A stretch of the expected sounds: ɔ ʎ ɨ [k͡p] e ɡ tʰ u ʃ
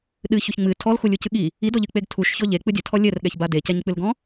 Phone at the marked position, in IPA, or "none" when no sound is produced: k͡p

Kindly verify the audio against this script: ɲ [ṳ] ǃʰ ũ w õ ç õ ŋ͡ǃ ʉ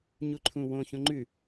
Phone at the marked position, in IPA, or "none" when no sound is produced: u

